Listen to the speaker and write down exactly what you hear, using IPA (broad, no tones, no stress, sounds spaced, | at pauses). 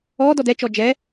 ɔ d ɔ d ɛ t͡ʃ ɔ d͡ʒ ɛ